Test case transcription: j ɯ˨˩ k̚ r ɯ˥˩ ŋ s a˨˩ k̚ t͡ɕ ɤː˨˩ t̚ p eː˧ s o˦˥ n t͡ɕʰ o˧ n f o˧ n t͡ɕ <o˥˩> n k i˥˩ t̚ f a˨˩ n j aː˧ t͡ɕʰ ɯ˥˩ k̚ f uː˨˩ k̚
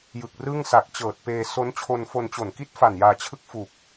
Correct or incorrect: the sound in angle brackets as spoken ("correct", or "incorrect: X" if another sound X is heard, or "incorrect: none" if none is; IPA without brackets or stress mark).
incorrect: o˨˩